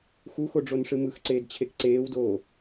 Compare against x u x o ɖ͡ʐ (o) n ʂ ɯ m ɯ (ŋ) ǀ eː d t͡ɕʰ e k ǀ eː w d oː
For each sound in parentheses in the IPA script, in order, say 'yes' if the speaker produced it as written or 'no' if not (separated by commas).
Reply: yes, no